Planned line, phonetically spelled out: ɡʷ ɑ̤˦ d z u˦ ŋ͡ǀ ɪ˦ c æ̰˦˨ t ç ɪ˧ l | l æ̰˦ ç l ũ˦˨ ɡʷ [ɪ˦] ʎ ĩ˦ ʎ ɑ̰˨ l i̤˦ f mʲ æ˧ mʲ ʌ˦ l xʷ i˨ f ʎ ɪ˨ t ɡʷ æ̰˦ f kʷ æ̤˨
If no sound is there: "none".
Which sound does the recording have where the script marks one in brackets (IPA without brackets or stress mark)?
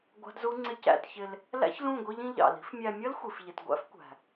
i˦